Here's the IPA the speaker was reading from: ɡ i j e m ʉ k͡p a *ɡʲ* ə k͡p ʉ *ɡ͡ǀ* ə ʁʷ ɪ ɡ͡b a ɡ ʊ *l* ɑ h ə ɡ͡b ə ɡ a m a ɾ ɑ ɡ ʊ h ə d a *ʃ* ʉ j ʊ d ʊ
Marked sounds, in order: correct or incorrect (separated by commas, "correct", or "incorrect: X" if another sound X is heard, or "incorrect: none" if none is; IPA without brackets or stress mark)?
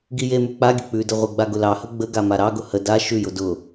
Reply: correct, incorrect: d, correct, correct